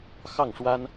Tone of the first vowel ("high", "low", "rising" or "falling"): falling